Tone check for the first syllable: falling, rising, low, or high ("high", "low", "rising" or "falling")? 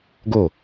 falling